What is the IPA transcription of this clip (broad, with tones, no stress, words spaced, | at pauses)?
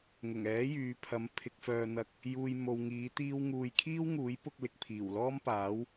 ŋʊ˨˩ŋɛː˨˥jyː˨pʰɐ˨˧m pʰɪ˧k̚fœː˧n̪ɐ˧k̚ | juː˧j mo˨wŋiː˨˥t̪iː˥wŋuː˧j kʰiː˥wŋuː˨˥jpʊ˧k̚ lɪ˨k̚pʰiː˨˩wlɔː˥mpaː˨˥w